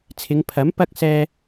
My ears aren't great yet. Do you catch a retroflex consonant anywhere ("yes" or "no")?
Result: no